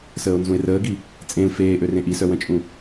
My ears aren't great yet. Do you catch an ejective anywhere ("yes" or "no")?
yes